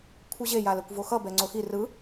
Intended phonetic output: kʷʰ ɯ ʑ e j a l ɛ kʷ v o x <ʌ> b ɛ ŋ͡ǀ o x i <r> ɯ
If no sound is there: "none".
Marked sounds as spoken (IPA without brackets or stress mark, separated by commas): ʌ, r